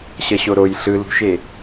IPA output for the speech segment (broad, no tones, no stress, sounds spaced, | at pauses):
ɕ ʌ ɕ o ɾ o j ɬ ɯ l ṳ ʃ e